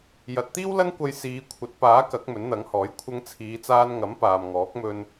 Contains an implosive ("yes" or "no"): no